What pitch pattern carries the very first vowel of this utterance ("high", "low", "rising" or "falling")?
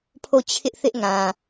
falling